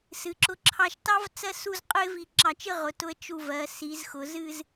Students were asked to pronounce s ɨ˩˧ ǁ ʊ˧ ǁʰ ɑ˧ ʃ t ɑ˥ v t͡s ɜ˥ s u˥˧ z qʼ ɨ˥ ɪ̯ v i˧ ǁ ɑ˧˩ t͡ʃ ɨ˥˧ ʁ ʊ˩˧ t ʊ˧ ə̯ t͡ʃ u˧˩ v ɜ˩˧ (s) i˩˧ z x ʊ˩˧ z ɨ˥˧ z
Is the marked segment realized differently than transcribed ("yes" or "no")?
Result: no